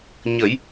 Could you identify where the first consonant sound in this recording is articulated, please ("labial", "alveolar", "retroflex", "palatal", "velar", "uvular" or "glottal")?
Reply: palatal